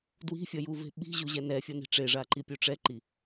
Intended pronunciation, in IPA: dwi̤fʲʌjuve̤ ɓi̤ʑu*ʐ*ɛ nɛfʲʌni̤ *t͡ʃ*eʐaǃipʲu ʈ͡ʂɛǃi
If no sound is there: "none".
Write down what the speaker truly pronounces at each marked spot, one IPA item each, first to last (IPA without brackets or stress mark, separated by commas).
ʑ, ʈ͡ʂ